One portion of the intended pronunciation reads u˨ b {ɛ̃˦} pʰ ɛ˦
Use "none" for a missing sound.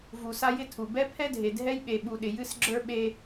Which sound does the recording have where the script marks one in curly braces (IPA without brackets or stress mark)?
ɛ˦